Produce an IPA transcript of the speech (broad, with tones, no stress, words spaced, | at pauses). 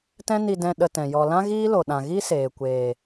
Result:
tɛ̃˦ni˧dɛ̃˧ ɗə˧tɛ̃˨ jɔ˨ lã˦ɣiː˦lo˨ ɗã˨ɣi˦ seː˨kʷeː˨